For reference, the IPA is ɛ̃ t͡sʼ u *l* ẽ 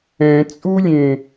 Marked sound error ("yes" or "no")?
yes